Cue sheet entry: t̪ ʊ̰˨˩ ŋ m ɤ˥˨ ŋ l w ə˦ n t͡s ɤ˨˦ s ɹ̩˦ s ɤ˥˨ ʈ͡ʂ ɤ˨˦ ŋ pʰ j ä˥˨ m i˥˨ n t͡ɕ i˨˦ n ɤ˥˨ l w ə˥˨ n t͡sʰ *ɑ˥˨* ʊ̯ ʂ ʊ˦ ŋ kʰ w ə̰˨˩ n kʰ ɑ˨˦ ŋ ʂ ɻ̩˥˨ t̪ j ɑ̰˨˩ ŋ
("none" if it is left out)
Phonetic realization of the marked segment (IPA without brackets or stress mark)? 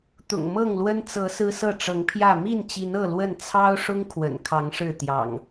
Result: ɑ˦